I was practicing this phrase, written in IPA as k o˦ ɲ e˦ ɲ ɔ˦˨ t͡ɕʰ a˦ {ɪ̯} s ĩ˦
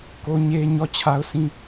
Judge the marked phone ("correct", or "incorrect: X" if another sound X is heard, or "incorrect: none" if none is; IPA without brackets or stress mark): incorrect: ʊ̯